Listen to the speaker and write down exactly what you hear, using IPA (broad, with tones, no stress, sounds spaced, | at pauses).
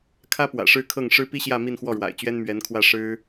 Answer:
kʰ ä˥ p w ä̰˨˩ ʂ ɻ̩˥˧ kʰ ɤ˥˩ ŋ ʂ ɻ̩˥ p i˥ ɕ j ä˥˧ m i˥˧ n x w ɔ˥˩ ɻ w a̰˨˩ ɪ̯ t͡ɕ ɥ ɛ˥ n m ɥ ɛ˧˥ n kʰ w ä˥˩ ʂ ɻ̩˥